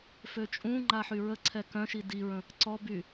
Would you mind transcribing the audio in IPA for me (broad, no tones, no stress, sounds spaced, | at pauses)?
f ø t͡ʃʼ ũ ŋ͡ǃ a ħ y ɹ ə ǀʰ ɛ k œ̃ ʃ i d i ɹ ə̃ | ǀ ɔ b y